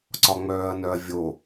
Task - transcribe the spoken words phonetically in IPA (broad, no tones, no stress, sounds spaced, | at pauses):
ǀ ɒ ŋ͡m œː ɐ̯ n œ ɐ̯ vʲ o